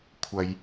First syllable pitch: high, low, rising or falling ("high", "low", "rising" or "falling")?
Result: low